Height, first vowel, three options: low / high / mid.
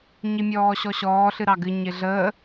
high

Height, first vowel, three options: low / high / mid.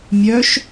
mid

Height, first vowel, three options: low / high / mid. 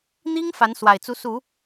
high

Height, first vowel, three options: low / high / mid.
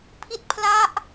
high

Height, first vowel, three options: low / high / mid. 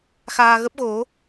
low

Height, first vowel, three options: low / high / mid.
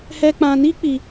mid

